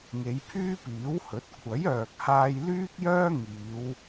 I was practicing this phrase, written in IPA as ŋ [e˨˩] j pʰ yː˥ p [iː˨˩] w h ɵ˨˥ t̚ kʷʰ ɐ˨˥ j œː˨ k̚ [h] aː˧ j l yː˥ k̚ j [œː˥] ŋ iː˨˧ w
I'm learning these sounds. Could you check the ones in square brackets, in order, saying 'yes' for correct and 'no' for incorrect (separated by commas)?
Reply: no, no, yes, yes